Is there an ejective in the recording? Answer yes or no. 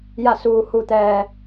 no